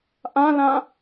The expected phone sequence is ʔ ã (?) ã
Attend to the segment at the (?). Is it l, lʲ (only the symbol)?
l